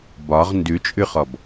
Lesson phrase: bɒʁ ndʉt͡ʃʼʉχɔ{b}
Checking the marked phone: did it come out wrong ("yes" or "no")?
no